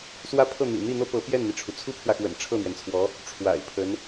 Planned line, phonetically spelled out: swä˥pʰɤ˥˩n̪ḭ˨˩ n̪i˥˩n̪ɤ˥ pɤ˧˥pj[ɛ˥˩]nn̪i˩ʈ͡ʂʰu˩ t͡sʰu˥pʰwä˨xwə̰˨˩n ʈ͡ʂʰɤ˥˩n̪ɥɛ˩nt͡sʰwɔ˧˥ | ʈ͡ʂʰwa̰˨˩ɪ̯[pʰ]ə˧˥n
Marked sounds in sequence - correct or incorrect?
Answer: correct, correct

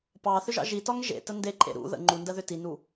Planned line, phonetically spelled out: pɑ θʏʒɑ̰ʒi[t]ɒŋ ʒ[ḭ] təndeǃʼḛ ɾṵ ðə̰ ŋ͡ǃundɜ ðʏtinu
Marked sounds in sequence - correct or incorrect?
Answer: correct, incorrect

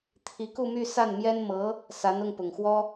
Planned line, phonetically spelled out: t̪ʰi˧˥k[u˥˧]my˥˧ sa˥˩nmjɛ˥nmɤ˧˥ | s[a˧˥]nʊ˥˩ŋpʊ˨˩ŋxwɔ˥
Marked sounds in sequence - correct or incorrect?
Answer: correct, correct

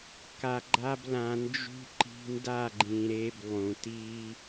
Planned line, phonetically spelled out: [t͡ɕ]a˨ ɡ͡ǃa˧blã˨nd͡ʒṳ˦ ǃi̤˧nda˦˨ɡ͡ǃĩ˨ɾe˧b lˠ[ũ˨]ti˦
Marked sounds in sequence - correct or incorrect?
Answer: incorrect, correct

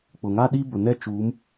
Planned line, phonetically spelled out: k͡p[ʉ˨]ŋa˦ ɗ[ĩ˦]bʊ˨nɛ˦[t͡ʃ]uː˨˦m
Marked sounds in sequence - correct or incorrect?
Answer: incorrect, incorrect, correct

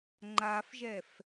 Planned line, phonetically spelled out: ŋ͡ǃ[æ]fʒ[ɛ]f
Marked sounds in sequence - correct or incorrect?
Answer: incorrect, correct

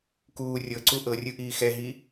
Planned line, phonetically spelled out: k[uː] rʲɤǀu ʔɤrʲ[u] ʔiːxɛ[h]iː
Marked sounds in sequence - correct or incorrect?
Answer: correct, incorrect, incorrect

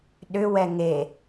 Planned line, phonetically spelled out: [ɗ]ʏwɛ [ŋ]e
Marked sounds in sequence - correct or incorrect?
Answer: correct, correct

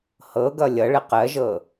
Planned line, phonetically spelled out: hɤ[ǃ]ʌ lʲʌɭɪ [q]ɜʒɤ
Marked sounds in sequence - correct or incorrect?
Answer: incorrect, correct

